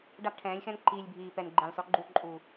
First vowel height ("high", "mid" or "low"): low